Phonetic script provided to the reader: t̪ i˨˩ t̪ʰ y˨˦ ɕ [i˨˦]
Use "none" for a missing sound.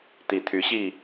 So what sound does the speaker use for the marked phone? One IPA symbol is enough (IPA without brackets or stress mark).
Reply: i˥˨